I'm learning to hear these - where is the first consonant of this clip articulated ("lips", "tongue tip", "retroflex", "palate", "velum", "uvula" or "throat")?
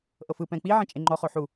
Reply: throat